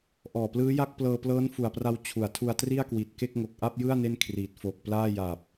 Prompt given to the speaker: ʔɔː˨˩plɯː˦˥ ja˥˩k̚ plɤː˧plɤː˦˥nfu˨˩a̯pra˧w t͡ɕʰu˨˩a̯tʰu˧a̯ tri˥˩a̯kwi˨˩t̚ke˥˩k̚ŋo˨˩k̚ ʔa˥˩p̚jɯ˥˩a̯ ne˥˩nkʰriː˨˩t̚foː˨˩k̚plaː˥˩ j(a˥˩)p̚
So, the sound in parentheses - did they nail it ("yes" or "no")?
no